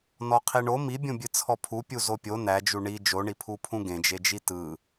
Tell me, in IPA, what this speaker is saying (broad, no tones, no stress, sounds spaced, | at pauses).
n ɔ qʰ i ɳ o m i bʲ ũ bʲ ɨ t͡sʰ ɔ pʰ u pʲ u z o pʲ o n æ d͡ʒ u ɳ i d͡ʒ o ɳ i pʰ u pʰ ũ ɡ ẽ d͡ʒ e d͡ʒ i t ɯ